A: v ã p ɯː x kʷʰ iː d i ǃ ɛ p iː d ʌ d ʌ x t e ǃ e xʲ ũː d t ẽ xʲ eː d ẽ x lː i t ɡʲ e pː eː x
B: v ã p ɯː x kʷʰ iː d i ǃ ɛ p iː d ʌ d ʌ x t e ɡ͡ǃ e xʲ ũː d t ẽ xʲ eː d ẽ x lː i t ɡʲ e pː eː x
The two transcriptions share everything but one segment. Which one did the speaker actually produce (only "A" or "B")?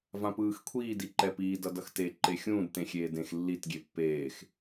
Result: A